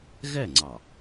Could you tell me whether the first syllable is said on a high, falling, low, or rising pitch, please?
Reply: falling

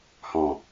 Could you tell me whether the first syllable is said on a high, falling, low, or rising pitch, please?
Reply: low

